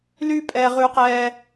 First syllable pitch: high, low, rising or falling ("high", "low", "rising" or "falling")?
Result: high